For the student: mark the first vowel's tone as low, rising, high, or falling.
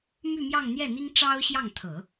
falling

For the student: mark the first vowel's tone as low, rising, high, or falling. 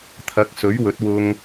rising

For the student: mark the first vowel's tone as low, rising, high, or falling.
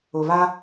low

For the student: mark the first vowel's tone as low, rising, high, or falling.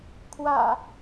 low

